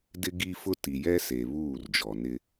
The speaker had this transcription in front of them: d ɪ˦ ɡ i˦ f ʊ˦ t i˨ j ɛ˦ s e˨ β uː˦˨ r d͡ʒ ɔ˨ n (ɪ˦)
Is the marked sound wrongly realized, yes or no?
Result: no